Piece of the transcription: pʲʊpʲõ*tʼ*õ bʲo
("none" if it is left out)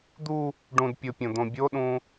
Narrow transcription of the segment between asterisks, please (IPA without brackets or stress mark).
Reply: d̪